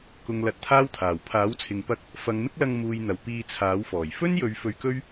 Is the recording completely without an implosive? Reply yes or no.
yes